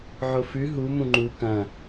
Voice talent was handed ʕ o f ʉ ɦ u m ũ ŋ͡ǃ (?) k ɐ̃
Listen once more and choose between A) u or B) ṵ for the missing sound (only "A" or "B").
A